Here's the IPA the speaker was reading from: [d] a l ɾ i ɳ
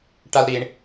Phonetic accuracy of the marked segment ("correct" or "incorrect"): incorrect